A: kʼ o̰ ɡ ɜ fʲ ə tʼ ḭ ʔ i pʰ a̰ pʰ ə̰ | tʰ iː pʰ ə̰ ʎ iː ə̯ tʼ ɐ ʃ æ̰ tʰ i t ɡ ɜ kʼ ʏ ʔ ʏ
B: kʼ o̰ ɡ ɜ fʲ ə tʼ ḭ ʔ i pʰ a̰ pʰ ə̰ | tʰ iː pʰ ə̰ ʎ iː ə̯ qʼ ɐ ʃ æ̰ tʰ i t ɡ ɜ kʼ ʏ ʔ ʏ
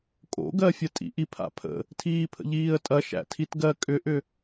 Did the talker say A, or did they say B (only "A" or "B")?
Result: A